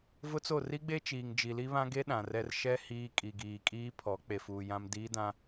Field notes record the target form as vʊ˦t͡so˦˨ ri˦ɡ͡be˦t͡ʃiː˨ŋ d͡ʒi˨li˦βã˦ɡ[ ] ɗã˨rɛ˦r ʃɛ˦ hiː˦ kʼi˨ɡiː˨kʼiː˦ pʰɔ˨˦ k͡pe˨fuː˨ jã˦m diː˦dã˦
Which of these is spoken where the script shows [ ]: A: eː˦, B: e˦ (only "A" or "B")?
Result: B